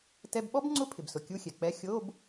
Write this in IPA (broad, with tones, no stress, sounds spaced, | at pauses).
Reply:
t ɛ˧˥˧ b ɓ ɔ˥ b ŋ͡ǀ ʊ˧˥˧ pʰ ɪ˩ b s ʊ˩ kʲ u˧˥˧ xʲ ɛ˩ k͡p ɛ˧˥˧ xʲ o˧˥˧ b